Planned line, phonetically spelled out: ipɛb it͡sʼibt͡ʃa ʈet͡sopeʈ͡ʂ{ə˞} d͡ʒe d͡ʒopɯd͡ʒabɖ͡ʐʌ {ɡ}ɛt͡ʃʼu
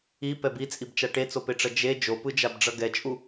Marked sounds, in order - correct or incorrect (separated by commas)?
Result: incorrect, correct